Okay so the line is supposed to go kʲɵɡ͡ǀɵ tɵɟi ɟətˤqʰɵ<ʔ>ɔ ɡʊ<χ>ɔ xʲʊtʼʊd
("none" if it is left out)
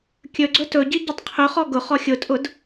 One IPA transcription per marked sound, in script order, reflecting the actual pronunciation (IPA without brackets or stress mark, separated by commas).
χ, χ